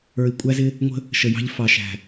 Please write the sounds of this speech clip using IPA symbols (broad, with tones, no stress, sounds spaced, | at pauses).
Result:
ə˞˨ i̯ kʷʼ æ˦ z ɪ˦ | ŋʷ ə̤˦ | ʃ ə˨ j ɑ̤˦ ʎ f ɑ˨ ʃ æ̤˨